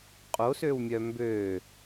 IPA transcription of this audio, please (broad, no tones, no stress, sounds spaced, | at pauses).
qʼ o s ø w mʲ œ m b ø